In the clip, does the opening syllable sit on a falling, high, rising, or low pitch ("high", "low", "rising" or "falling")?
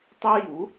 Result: high